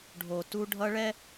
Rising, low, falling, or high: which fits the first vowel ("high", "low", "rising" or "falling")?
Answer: low